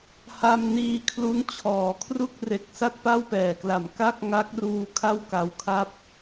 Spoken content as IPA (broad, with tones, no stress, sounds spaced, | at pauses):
h a˧ m n iː˧ kʰ l u˦˥ n t͡ɕʰ ɔː˩˦ kʰ r u˥˩ k̚ r e˨˩ k̚ s a˥˩ t̚ p a˥˩ w p ɛː˨˩ k l a˨˩ m k a˥˩ k̚ ŋ a˦˥ k̚ r uː˧ kʰ a˥˩ w k a˧ w kʰ a˥˩ p̚